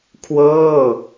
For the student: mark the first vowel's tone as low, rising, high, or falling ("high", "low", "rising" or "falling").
falling